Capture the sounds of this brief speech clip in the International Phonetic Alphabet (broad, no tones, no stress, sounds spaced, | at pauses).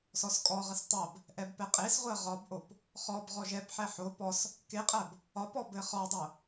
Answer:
s ɔ s kʼ ɔ ʁ ɘ s tˤ ɜ b | ʔ ɛ b p ɛ qʼ e s ʁʷ ɜ ʁ ɒ b ʔ o p | χ ɔ b ʁ ɔ ʒ ɛ p ħ ɛ ħ o p ɔ s | k e qʼ ɜ b | ɒ p ɔ b ɘ χ ɒ dˤ o